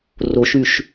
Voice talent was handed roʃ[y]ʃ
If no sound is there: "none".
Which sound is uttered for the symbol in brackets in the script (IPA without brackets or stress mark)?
y